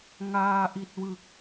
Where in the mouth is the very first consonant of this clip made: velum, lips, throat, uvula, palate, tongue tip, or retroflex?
velum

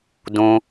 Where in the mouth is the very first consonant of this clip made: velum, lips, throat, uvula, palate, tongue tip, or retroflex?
tongue tip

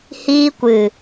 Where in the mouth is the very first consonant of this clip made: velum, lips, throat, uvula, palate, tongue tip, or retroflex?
throat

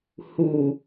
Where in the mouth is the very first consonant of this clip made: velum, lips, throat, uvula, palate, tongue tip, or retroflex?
throat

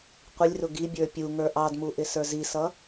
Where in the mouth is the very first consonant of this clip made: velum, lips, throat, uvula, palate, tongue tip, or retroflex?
uvula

